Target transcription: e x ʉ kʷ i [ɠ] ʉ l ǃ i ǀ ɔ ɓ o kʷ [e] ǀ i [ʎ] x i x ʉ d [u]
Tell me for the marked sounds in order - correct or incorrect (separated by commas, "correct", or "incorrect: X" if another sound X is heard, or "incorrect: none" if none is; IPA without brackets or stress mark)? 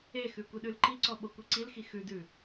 incorrect: ɗ, incorrect: i, incorrect: l, incorrect: ʉ